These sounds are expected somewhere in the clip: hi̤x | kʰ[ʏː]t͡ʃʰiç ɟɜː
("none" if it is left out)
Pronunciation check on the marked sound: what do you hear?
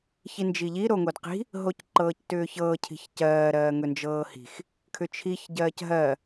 ʏ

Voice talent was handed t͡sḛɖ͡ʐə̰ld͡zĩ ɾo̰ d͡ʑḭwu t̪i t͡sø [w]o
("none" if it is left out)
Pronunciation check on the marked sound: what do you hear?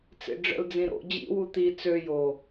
j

